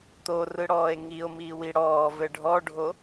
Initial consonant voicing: voiceless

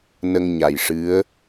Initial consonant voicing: voiced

